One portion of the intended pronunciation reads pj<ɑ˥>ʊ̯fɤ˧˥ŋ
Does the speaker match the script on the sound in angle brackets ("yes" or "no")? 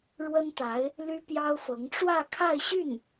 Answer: yes